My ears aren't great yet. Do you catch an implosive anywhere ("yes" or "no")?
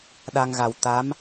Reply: yes